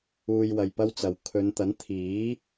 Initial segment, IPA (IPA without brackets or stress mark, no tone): uː